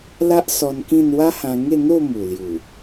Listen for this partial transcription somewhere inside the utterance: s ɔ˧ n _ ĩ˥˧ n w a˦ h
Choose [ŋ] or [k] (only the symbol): k